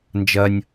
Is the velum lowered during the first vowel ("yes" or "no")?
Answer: no